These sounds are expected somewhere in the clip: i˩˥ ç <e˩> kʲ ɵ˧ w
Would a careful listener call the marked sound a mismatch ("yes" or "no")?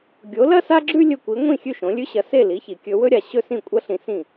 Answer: yes